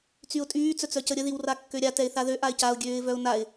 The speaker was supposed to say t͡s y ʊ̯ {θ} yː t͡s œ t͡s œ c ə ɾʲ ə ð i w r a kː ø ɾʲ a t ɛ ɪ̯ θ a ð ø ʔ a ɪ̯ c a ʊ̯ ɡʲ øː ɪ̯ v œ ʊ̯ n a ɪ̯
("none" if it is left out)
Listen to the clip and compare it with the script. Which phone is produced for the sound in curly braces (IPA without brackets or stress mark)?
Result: tʼ